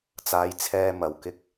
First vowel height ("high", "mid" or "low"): low